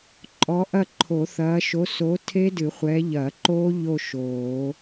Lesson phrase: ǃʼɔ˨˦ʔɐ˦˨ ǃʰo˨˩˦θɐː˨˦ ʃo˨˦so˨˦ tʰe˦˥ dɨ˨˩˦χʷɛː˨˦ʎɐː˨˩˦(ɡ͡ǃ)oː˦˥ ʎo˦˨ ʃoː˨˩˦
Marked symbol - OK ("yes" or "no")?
no